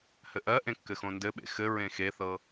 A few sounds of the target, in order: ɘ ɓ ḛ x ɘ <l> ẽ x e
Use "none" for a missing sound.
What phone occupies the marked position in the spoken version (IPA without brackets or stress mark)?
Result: ɹ